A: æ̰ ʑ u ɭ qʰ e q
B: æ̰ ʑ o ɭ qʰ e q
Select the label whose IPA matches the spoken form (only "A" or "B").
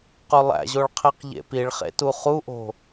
B